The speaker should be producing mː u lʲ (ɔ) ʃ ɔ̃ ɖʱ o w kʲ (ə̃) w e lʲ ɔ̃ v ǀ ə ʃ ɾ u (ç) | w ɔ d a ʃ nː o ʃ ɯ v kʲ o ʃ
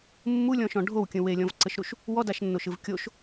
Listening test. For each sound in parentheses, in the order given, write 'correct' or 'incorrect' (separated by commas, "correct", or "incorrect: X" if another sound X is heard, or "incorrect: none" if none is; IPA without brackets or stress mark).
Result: incorrect: ɔ̃, correct, incorrect: ʃ